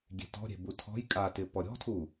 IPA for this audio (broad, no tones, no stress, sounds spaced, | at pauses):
ɡʲ e̤ t ɔ̤ ɾʲ e̤ b u tʰ ɔ̤ j kʼ a t ɪ p ɔ ɾʲ ɔ̤ tʰ u